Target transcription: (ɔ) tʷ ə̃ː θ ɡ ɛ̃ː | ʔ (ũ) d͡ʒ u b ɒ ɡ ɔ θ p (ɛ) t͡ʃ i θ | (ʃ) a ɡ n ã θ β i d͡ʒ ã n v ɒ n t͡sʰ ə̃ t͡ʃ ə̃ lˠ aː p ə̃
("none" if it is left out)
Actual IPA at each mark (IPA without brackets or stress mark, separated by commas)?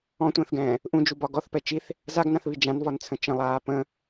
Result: ɔ̃, ũ, ɛ, z